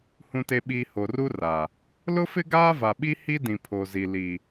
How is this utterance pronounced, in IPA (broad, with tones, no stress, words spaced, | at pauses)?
hũ˨te˨ɓiː˨ ho˨ru˦ra˨ | lʊ˦fɪ˦ɡaː˦ va˨ɓi˦ hi˦dĩ˨pʰo˨zi˨ li˨